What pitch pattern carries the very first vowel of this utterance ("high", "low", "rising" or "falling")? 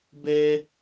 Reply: high